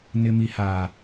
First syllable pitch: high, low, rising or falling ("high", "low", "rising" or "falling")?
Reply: low